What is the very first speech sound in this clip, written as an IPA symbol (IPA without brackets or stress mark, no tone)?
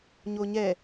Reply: ɲ